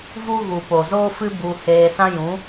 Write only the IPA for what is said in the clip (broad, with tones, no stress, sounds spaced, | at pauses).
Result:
v u˦ ɣ u˨ p o˨ z oː˦ f ɨ˦ b u˧ h eː˧ s ã˦ j ũ˨˦